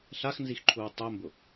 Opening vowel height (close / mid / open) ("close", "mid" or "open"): open